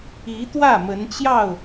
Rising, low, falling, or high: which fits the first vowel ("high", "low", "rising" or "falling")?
rising